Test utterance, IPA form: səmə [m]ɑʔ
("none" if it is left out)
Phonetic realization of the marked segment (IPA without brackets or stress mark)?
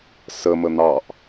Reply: n̪